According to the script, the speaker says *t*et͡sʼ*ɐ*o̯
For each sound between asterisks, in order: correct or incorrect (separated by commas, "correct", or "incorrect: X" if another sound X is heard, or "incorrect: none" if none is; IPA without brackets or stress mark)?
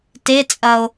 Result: correct, correct